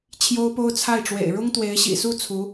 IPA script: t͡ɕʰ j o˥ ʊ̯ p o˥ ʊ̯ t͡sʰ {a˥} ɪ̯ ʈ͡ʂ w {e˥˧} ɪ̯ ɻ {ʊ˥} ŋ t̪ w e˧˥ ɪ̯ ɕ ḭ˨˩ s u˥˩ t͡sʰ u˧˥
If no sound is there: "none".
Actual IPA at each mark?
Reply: a˥˩, ḛ˨˩, ʊ˥

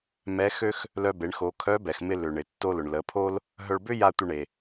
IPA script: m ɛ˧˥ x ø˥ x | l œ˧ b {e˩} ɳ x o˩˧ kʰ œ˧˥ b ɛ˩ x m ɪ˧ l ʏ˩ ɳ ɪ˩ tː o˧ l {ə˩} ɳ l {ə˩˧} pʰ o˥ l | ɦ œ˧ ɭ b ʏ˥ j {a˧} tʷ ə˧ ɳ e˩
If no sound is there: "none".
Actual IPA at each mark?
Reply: e˩˧, ʊ˩, ə˩˧, a˧

